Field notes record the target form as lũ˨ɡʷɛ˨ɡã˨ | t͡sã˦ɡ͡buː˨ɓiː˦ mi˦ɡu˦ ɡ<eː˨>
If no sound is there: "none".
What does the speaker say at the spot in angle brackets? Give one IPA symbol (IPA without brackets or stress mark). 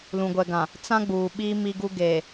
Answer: eː˨